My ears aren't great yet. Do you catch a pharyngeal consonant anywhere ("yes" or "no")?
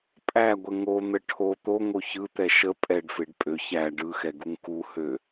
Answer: no